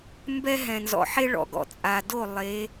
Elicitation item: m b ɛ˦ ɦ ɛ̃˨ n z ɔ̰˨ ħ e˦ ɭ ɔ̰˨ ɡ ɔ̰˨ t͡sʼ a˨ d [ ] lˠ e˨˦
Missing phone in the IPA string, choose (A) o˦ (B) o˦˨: B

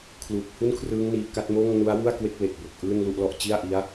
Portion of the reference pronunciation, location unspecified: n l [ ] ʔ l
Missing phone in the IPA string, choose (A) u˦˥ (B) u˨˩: A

